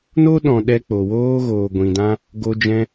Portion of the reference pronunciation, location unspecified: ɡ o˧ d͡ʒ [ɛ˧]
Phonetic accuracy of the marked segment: incorrect: ɛ̃˧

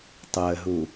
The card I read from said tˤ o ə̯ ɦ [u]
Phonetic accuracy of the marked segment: correct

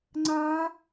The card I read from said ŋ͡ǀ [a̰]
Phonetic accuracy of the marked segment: incorrect: a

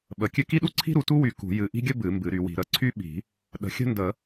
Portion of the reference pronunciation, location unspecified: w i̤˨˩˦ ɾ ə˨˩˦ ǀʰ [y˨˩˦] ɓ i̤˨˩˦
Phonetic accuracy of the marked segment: incorrect: y˥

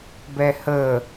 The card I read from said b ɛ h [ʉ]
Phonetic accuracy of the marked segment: incorrect: ə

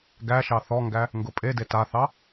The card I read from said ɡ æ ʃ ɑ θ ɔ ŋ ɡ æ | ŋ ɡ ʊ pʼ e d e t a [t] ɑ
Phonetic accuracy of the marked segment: incorrect: θ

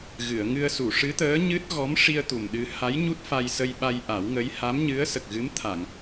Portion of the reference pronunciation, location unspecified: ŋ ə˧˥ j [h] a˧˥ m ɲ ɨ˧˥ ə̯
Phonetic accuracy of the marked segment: correct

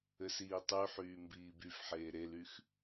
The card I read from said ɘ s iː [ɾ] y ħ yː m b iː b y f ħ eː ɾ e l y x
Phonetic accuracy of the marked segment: incorrect: tˤ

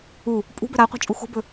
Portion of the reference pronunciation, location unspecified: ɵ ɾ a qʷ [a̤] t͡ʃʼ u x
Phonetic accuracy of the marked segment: correct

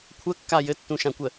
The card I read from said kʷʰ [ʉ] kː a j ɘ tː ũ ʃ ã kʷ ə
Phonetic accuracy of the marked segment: incorrect: ə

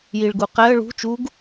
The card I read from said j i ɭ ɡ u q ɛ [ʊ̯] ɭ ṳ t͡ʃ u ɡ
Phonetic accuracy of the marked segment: incorrect: ə̯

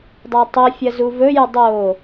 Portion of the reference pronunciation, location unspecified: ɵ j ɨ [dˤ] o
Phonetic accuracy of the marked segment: correct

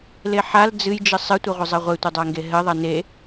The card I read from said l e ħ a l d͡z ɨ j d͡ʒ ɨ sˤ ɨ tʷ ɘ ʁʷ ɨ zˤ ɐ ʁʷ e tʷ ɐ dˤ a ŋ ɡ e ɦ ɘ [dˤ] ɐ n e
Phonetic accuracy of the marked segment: incorrect: ðˤ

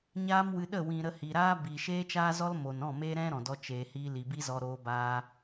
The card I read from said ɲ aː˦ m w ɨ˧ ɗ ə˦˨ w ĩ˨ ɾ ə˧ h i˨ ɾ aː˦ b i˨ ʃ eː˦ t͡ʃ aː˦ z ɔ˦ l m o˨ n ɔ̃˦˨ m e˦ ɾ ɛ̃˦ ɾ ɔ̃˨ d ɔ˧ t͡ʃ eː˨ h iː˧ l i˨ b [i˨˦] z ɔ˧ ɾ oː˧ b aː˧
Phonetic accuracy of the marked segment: incorrect: i˦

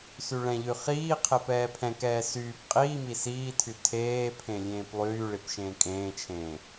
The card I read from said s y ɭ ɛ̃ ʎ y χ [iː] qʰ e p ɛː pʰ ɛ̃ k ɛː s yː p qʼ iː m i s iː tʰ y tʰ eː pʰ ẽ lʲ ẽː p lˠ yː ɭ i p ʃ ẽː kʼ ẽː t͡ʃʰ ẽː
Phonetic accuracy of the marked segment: correct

